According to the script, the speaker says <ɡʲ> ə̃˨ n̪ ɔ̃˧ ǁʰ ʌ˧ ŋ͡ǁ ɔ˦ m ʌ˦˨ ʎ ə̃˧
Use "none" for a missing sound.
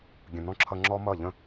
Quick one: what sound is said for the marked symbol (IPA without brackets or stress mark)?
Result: ɡʲ